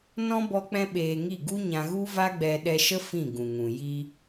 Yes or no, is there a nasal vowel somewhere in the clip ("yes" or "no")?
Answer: yes